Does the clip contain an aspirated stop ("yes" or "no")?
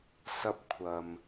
yes